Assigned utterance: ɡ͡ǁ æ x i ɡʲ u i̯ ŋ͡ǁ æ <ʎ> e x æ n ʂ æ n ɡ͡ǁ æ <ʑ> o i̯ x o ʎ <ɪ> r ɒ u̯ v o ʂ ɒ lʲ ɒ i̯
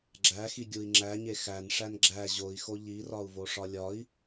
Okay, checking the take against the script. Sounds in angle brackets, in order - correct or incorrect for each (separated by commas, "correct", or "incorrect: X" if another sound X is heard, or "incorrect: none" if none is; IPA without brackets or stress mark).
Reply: incorrect: ɲ, correct, incorrect: i